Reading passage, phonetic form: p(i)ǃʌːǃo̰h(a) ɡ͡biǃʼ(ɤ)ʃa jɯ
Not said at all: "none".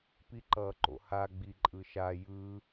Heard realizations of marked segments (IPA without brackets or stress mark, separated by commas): i, a, ɯ